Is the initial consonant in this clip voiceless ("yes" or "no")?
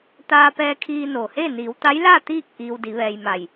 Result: yes